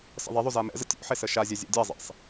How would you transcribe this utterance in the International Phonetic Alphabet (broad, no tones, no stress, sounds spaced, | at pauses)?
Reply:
s ə̰ ðˤ e ðˤ u z a m ɛ̰ z ə̰ tʲ ṵ ħ e s ə ʃ a zʲ ɛ zʲ ḛ dʲ a zˤ ḛ sˤ